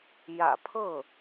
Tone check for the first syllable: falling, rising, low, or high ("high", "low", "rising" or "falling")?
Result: low